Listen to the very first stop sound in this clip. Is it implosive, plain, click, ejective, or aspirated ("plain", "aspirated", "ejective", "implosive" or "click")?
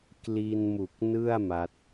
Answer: plain